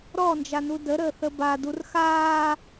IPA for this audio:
ɾɔnd͡ʒanu dəɾəːθə ba durxaː

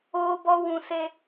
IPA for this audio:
oː˦bɔ˦ wũ˦se˦

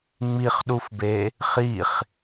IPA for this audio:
ŋ͡miχɗufbe | χiχ

